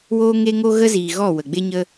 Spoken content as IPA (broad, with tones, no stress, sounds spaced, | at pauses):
w oː˦ ŋ e˦ ŋ o˦ ɣ ə˦ z iː˨ ɣ ɔ˦˨ w ə˨ ɡ͡b e˦ ɲ ə˦